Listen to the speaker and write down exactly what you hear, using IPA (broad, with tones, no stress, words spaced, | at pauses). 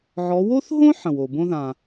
ʕɔ˧˥ wo˥θɦõ˥ ħə̃˩wo˩bõ˥ðã˩